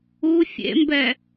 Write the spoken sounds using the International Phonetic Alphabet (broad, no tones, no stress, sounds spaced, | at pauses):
u fʲ ḛ m b ɛ